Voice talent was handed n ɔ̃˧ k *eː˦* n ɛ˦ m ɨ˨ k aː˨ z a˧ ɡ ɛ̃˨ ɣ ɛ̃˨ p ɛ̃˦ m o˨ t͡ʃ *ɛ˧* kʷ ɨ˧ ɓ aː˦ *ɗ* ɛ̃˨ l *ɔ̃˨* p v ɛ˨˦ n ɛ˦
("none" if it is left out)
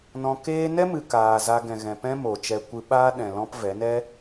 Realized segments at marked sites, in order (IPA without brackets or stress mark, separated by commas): eː˦, ɛ˧, ɗ, ɔ̃˦